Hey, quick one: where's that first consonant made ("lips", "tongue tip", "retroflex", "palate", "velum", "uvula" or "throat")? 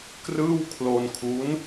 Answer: velum